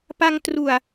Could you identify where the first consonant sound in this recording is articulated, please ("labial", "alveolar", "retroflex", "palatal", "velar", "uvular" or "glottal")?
labial